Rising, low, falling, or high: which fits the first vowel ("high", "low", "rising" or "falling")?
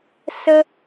high